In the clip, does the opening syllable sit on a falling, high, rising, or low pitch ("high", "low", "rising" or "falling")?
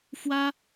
high